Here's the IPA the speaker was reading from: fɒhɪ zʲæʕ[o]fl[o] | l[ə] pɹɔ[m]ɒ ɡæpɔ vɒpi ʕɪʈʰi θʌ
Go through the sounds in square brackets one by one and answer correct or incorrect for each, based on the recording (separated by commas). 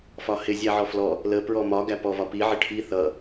incorrect, incorrect, correct, correct